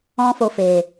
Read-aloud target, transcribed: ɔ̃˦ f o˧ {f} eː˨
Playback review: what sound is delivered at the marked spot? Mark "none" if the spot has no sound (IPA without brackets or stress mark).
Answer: f